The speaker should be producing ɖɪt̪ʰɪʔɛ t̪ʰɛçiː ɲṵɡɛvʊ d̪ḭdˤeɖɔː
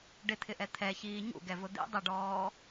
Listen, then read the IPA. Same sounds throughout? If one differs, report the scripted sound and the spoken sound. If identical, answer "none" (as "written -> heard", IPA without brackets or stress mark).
none